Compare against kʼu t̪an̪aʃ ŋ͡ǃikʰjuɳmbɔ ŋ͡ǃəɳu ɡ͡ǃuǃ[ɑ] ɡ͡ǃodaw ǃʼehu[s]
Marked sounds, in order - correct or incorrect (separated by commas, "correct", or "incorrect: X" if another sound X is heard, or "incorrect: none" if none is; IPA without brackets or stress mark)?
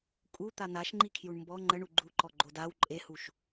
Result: incorrect: ɔ, incorrect: ʃ